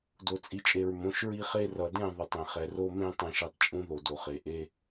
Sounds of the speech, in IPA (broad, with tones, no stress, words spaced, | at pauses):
do˨t͡sʼi˨t͡ʃʼe˨ɹ mõ˨˦ʃɹi˦χe˦ rʌ˨dẽ˦˨ðˤʌ˨tˤ ẽ˨χɛ˨ro˦mẽ˦ tˤɛ̃˨ʃɛ˨tˤ t͡ʃʼũ˦ðo˨ do˨χe˨ʔe˦